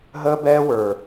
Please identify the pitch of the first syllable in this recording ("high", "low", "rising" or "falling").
high